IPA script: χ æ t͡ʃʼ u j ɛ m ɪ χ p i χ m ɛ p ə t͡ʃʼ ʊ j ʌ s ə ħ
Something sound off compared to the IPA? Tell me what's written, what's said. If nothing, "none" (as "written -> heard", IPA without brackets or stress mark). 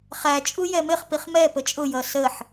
none